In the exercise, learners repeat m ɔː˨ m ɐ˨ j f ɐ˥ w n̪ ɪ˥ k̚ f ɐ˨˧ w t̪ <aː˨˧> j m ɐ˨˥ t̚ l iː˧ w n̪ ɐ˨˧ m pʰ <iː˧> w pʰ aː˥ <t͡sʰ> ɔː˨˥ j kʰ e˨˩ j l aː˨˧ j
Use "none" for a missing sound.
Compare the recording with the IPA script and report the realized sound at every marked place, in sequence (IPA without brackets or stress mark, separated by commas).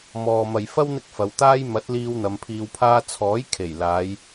aː˥, iː˧, t͡sʰ